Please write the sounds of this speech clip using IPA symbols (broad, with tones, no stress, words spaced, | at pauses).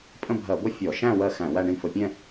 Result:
pʼə̃˥˧bʱɜ˧˩˧ɡʷʌ˥˧ fʲɔ˧˩˧ ʃæ̃˥˧ wɜ˥˧xæ̃˧˩˧wæ˥˧ɳĩ˥˧ fə˧˩˧pʲɛ̃˥˧